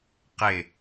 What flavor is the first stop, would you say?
plain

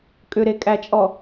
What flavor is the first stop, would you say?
ejective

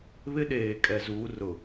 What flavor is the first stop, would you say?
implosive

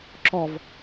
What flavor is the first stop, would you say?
click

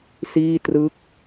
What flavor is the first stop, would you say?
plain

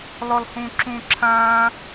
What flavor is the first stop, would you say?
click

